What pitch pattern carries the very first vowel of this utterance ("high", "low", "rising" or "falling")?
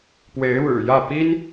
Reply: rising